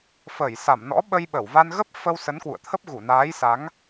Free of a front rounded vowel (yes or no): yes